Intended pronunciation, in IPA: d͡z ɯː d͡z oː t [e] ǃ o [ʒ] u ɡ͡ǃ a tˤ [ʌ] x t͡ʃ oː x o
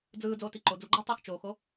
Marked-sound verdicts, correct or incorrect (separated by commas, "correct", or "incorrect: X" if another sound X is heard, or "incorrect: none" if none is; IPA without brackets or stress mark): incorrect: i, incorrect: d͡z, correct